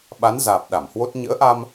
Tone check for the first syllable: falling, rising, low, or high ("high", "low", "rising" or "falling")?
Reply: rising